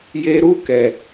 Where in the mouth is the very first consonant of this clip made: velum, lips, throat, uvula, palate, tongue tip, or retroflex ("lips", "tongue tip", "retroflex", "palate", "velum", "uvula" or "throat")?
palate